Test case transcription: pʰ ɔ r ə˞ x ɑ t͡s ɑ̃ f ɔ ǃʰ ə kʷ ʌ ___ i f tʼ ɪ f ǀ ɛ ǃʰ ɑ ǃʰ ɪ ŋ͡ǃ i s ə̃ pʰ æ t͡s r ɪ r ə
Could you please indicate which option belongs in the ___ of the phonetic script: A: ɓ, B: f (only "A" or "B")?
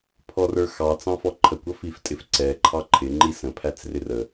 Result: B